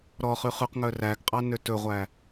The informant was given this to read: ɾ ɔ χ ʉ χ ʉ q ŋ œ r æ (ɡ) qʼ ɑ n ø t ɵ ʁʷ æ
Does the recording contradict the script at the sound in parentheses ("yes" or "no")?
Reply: no